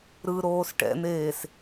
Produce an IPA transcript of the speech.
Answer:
ɾ ɯ ɾ oː s ʈ ɛ̰ n̪ eː s

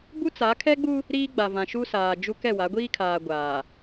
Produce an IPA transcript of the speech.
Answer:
b u˦ t͡s a˨˦ kʰ ɛ˦ ɡ͡b u˦ | ɾ iː˦ ɡ͡b a˨ v ã˨ ʃ u˦ s aː˨ d͡ʒ u˦ k ɛ˦˨ w a˨˦ ɡʷ iː˦ kʰ aː˨ ɡʷ aː˨

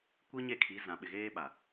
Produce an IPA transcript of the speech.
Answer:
kʷ i˦ ɲ e˦˨ kʰ i˨˦ z ã˨ ɓ ɪ˨ ɣ eː˦ ɓ a˨

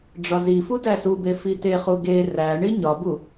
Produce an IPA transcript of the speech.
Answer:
ɖ͡ʐ ɒ z i f u d æ s u b e f i t e χ u ɡ e r æ ɳ i ɲ ɒ b u

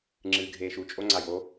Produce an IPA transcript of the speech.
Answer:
ŋ͡ǁ ɨː ɡʱ eː ʃ u t͡ʃʼ o ŋ͡ǀ a j o

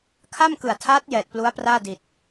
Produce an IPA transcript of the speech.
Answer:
kʰ a˥˩ m k ɯ˨˩ a̯ tʰ aː˦˥ t̚ j ɛː˨˩ t̚ p l u˦˥ a̯ p r aː˥˩ d i˨˩ t̚

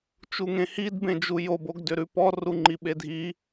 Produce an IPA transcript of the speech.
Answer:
t͡ʃ u ŋ ẽ h i d b ẽ d͡ʒ u j o b o ɡ d ʏ ɾ ʉ p ɔ r u ŋ͡ǃ i ɓ e dʱ i

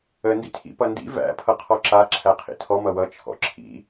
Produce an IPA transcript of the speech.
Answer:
ə n d ḭ tʰ ḭ p ʌ n d ḭ v æ̰ pʰ ʌ qʰ ɔ ǁ a ǁʰ æ qʰ ḭ tʰ ɔ m ʌ w ʌ t͡ʃʰ ɔ̰ ǁʰ ḭ

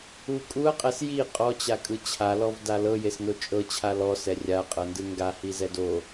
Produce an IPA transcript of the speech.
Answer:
u kʼ u ɐ̯ qʼ ɛ s j i qʼ ɔ t͡ɕ a kʼ ɯ t͡ɕʰ a l ɔ v d a l ɤ j e s n o t͡ʃʼ ɤ t͡ɕʰ a l ɔ s ɛ rʲ a qʼ ɤ n d ɯ ŋ ɡ a h i z ɛ d o

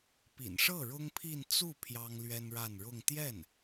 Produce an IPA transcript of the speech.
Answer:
p ḭ˨˩ n ʂ ɤ˥˩ ɻ ʊ˥ ŋ pʰ i˥˧ n t͡s u˥˩ pʰ j ɑ˥ ŋ l ɥ ɛ˥ n ɻ a˥˧ n ɻ ʊ˥˧ ŋ t̪ j ɛ˥˩ n

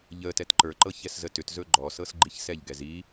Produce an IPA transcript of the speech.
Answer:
ʎ ə t ɛ t ǃ ə˞ ǃ ɤ ç ɛ s z ə t ʏ t z ɵ ɡ͡ǃ ɔ s ɤ s ɡ͡ǃ i ç s ɛ ʎ ɡ ɛ z i

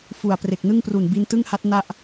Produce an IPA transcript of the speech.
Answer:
f u˨˩ a̯ p r e˨˩ k̚ n ɯ˥˩ ŋ p r u˨˩ n b i˧ n t ɯ˥˩ ŋ h a˦˥ t̚ n a˥˩ ʔ

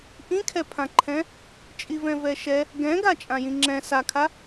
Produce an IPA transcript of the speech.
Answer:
ʔ ĩ kʰ ɛ pʰ ã ǃʰ ɛ̃ | t͡ʃʼ i v ɛ̃ v ɛ ʃ ɛ | ɡ ɛ̃ ɡ a t͡ʃʼ ã j ĩ ŋ͡ǁ ɛ̃ s a kʰ a

